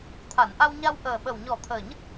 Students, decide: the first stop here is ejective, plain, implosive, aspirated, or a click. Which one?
aspirated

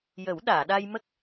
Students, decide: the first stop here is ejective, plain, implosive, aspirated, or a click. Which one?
implosive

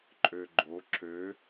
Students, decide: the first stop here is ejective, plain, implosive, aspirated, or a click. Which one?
click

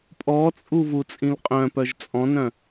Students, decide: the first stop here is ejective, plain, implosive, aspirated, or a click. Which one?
ejective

